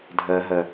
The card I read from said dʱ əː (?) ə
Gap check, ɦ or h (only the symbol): ɦ